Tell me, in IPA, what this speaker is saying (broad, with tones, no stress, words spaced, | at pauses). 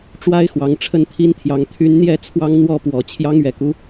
ʈ͡ʂwa˦ɪ̯ xwɑ˨˦ŋʈ͡ʂʰə˥˨nt̪ʰi˦nt̪ʰjɑ˨˦ŋ t̪ʰy˨˦nn̪jɛ˥˨ t͡sʰwɑ˦ŋn̪wɔ˥˨pwɔ˨˩ t͡ɕʰjɑ˦ŋɥɛ˨˩ku˦